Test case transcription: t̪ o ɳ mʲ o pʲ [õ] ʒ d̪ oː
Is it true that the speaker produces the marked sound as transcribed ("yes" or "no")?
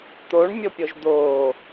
no